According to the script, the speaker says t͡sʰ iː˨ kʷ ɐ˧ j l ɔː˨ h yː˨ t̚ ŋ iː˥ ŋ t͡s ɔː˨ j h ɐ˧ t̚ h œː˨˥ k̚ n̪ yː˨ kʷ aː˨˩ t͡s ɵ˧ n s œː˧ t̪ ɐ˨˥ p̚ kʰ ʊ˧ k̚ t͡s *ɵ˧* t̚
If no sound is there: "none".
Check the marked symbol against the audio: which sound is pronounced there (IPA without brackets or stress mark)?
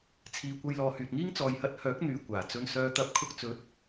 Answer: ɵ˨˥